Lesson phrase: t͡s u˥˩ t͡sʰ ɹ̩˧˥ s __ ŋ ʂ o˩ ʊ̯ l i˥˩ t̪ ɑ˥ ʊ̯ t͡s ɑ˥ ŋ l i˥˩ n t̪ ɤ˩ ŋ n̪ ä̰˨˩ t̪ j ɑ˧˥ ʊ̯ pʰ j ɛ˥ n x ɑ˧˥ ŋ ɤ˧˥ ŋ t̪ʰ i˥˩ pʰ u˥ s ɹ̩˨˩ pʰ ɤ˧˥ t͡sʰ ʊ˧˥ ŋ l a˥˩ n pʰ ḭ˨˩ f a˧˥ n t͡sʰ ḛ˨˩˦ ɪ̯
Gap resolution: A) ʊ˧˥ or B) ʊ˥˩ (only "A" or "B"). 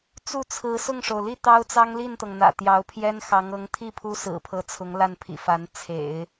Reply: B